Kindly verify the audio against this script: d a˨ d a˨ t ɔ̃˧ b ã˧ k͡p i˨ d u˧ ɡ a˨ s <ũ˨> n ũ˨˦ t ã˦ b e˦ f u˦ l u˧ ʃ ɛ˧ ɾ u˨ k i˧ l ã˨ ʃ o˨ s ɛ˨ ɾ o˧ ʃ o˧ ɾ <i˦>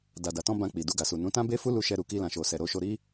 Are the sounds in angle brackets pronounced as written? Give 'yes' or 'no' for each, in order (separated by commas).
no, yes